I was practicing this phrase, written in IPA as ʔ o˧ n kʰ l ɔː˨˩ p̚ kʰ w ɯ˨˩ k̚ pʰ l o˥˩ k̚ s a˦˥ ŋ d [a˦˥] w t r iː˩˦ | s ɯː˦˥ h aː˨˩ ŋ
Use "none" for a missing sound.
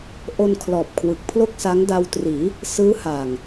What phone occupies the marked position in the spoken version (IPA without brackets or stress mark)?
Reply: a˧